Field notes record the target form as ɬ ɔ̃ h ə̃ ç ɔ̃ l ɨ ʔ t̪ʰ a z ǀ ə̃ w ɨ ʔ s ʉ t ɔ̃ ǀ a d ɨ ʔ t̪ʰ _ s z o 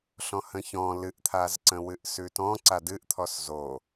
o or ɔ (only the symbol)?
ɔ